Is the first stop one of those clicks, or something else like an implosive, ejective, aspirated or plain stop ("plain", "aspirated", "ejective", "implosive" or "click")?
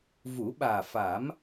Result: implosive